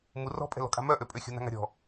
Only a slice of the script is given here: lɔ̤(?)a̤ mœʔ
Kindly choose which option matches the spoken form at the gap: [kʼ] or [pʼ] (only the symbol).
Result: kʼ